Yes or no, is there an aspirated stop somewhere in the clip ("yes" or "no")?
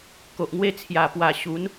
yes